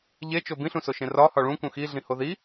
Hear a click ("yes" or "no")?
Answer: no